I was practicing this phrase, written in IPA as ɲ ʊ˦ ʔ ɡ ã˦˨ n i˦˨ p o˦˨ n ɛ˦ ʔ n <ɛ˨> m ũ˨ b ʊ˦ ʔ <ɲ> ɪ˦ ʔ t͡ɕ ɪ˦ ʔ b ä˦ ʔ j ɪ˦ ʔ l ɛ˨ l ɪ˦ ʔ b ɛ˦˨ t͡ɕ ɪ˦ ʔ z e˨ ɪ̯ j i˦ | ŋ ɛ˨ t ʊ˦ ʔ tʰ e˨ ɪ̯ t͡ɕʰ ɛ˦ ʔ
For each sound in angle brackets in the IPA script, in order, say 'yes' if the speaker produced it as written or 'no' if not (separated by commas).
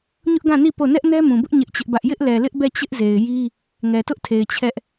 no, yes